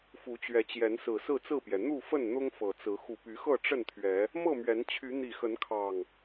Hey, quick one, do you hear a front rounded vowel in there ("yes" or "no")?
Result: yes